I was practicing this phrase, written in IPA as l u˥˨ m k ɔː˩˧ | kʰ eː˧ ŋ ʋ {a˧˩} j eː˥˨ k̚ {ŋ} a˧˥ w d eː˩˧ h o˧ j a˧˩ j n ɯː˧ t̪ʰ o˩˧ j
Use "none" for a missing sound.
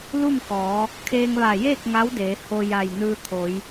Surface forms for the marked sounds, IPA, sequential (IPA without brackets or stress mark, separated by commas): a˧˩, ŋ